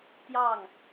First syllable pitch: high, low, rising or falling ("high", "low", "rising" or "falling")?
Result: falling